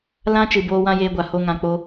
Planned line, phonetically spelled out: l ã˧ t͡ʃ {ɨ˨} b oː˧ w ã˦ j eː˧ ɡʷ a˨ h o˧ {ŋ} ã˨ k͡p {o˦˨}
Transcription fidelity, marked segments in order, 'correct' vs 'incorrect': correct, correct, incorrect: o˦

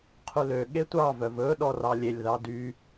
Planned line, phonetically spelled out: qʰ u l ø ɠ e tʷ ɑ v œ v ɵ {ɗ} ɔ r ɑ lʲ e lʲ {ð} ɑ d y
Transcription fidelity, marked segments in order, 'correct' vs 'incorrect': correct, correct

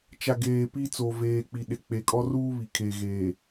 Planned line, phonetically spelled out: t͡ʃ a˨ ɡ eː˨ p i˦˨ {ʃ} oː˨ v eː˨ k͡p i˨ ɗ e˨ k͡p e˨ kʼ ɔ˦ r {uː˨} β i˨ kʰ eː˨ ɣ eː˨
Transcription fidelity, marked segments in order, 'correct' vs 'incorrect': incorrect: t͡s, incorrect: uː˦

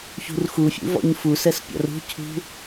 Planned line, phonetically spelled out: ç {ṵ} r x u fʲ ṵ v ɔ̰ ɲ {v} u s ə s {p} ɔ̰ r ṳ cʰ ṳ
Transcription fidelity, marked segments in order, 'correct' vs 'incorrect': incorrect: ṳ, incorrect: f, incorrect: pʲ

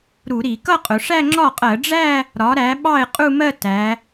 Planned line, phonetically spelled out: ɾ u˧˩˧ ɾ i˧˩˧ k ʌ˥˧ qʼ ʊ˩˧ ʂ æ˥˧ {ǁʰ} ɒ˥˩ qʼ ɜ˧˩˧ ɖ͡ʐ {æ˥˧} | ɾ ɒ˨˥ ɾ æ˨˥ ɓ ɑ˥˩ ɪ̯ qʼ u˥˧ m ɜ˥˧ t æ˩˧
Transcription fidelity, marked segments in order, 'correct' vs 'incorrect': incorrect: ŋ͡ǁ, correct

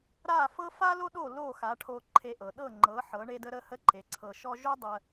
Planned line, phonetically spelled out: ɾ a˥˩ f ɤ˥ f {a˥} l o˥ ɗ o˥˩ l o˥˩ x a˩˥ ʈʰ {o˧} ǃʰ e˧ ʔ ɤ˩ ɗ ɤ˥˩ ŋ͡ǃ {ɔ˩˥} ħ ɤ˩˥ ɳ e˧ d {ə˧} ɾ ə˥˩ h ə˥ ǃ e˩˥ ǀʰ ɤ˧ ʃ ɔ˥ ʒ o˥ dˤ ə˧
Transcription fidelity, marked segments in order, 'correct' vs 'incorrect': correct, correct, incorrect: ɤ˩˥, correct

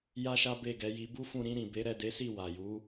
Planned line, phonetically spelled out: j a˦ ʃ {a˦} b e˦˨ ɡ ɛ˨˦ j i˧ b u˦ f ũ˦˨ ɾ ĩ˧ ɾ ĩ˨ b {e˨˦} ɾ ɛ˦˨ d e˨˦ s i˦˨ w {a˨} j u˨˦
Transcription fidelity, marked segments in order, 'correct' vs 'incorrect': correct, correct, correct

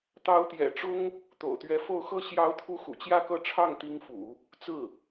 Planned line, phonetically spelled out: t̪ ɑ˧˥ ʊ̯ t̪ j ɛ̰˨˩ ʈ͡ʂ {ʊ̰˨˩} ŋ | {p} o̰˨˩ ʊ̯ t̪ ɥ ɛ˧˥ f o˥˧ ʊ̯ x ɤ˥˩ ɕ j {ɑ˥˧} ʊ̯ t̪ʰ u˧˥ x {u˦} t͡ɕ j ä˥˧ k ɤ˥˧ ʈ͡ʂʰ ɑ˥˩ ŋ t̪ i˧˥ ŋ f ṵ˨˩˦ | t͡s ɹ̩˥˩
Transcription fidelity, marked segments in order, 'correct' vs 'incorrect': incorrect: ʊ˥, incorrect: t̪, incorrect: ɑ˧˥, incorrect: ṵ˨˩

